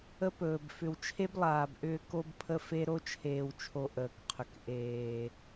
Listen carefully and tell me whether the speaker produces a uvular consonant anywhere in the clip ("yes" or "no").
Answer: yes